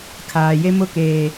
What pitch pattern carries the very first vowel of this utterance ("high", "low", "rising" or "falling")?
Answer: low